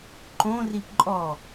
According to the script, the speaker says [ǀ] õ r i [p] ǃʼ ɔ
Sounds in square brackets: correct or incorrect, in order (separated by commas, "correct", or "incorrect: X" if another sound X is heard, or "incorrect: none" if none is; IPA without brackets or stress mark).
incorrect: ǃ, correct